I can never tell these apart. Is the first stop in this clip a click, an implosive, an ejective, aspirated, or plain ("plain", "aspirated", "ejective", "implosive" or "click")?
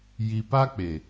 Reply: plain